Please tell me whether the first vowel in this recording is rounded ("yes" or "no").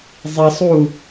no